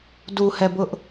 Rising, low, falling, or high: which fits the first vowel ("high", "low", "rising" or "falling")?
low